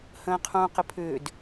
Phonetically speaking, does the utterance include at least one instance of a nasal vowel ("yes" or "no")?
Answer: yes